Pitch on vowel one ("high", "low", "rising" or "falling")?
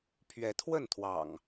rising